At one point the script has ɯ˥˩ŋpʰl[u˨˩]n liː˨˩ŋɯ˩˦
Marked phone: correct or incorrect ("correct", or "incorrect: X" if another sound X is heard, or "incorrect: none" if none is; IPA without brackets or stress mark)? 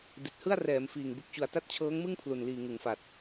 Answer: correct